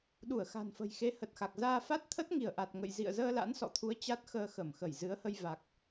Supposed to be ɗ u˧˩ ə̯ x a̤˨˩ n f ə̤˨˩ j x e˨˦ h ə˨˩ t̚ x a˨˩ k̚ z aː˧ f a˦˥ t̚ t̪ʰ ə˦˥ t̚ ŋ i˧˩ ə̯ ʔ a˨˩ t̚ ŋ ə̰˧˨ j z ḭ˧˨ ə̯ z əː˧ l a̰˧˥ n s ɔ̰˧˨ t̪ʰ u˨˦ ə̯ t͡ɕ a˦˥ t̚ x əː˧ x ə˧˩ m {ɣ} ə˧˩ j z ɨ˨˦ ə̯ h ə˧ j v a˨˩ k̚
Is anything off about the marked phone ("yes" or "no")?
yes